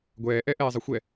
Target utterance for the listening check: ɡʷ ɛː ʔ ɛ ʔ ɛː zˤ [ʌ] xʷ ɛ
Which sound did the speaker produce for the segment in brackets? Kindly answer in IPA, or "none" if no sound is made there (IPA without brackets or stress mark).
ʌ